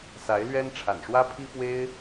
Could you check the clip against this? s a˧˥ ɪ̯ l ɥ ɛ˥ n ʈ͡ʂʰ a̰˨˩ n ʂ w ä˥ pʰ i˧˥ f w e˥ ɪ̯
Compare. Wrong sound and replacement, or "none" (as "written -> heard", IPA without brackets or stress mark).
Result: i˧˥ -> i˥